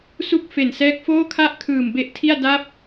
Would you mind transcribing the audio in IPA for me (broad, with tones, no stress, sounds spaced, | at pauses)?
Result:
s u˥˩ k̚ f e˨˩ n s ɛː˦˥ k̚ f oː˥˩ kʰ a˥˩ ʔ kʰ ɯː˨˩ m b e˦˥ ʔ tʰ i˥˩ a̯ d a˦˥ p̚